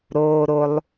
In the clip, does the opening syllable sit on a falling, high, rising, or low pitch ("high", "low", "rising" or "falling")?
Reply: high